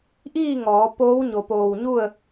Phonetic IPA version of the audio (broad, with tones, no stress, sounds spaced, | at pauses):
ʔ iː˥˨ ŋ ɔː˩˧ p oː˧˥ w ɲ o˧˩ p oː˧˩ w ɲ u˥˨ ə̯